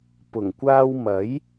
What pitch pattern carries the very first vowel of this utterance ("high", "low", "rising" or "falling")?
low